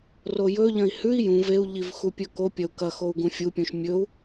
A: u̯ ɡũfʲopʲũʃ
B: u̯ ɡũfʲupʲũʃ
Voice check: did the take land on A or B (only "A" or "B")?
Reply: B